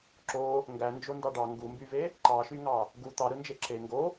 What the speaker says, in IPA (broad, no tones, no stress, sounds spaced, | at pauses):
ǁ o | ŋ ɡ æ n d͡ʒ o n d ɑ ɖ ɑ ŋ ɡ u m b y v e | ǃ ɑ ʃ y ŋ ɑ | ɡ u t̪ ɑ ɾ ɯ n d͡ʒ e ǁ e ŋ ɡ o